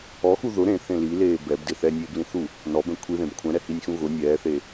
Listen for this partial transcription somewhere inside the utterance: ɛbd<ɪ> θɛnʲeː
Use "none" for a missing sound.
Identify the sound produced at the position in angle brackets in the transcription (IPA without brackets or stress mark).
ɪ